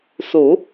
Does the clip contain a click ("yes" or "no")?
no